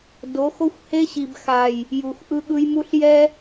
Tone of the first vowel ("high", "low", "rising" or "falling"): rising